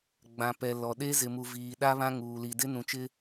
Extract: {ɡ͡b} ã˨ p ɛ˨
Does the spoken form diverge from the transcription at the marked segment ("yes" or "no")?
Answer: no